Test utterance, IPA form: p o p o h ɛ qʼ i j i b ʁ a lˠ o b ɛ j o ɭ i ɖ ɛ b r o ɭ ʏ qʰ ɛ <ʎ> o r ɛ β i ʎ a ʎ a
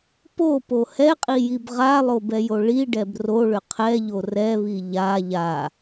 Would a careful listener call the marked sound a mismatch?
no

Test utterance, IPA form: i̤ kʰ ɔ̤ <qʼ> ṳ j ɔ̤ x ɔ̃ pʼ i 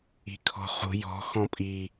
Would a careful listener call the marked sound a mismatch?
yes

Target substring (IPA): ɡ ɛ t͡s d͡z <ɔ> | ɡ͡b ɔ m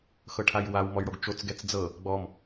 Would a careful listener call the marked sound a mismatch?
yes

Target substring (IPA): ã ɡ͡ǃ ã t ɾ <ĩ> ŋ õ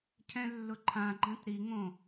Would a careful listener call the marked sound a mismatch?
yes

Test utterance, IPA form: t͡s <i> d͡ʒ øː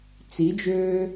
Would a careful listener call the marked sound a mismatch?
no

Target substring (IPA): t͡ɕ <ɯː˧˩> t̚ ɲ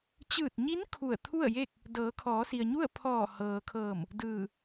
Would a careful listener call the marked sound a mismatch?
no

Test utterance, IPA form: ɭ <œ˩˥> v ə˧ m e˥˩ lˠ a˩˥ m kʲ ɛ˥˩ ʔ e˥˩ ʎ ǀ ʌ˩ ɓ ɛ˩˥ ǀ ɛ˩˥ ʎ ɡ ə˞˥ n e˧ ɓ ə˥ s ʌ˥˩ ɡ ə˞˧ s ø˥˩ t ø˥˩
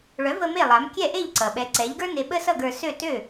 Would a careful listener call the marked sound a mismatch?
no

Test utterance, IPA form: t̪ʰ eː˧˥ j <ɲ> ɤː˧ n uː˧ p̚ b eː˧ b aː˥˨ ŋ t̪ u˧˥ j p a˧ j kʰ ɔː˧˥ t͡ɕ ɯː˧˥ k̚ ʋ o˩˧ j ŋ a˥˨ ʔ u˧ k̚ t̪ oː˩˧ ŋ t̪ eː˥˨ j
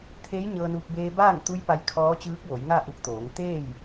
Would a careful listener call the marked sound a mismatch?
no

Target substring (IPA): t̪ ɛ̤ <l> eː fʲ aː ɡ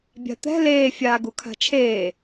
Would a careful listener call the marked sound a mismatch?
no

